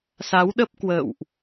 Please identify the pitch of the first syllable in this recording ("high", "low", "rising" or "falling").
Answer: rising